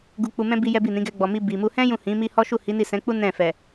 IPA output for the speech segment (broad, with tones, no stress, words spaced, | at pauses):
ɡu˧k͡pu˧mɛ̃˦ bi˦jɛ˦bi˦˨nĩ˨˦ ɡɛ˧ɡ͡bɔ˨mi˧ bi˨mu˧ hɛ̃˦ jũ˦˨hĩ˨˦mi˦ hɔ˦ʃu˦˨ hi˨˦ni˦˨sɛ̃˨˦ k͡pu˦ nɛ̃˦˨fɛ˨